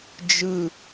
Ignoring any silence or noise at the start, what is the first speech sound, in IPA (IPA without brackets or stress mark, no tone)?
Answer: d͡ʒ